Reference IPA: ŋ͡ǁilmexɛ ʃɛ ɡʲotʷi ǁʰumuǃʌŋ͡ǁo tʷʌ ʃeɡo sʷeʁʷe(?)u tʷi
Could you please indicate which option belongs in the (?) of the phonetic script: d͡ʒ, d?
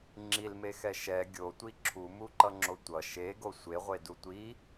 d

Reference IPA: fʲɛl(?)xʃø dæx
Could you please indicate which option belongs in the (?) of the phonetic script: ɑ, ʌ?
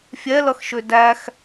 ʌ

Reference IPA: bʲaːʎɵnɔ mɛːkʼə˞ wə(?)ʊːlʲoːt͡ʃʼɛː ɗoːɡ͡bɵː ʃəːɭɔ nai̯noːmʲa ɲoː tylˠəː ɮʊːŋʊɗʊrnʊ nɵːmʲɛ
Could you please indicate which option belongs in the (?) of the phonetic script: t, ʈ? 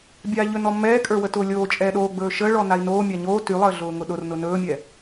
t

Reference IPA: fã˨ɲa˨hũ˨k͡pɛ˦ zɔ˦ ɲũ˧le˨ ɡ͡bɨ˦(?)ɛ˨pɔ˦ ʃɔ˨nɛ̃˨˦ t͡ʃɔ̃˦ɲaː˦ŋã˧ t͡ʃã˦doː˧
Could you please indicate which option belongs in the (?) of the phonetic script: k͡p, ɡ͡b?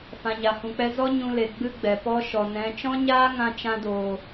ɡ͡b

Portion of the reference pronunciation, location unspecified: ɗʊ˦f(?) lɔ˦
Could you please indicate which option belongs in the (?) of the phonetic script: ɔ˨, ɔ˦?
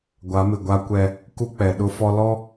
ɔ˦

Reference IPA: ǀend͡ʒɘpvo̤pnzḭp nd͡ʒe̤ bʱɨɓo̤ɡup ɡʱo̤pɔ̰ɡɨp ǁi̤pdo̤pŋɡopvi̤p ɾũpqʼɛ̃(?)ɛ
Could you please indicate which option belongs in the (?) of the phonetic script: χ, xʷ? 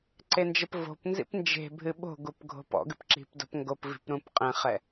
χ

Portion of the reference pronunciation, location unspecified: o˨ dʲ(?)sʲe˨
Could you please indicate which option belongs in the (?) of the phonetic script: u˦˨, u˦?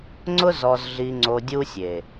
u˦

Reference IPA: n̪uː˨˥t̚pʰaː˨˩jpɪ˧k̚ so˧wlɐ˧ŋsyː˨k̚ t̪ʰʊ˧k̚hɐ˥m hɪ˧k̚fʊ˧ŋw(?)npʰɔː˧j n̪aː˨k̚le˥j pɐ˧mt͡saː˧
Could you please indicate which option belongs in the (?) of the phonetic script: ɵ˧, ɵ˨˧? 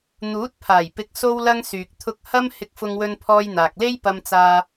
ɵ˧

